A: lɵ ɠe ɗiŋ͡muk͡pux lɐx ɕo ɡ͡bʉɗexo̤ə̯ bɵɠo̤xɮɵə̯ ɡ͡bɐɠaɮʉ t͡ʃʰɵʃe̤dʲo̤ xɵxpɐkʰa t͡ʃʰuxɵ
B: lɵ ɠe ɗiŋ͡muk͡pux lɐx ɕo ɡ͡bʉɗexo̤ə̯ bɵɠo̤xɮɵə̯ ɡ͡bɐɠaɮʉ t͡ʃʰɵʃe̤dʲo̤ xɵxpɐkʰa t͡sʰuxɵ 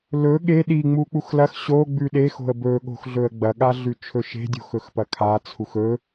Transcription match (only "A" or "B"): B